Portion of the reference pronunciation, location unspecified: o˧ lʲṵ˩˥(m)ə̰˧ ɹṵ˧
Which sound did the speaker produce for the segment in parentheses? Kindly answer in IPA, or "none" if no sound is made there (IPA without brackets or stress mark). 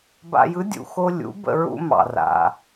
b